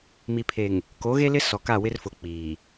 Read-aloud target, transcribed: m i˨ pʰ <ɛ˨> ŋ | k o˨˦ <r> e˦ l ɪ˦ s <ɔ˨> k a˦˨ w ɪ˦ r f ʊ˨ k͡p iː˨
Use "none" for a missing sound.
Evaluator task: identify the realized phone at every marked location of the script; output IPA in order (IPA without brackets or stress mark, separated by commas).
e˨, ɣ, ɔ˨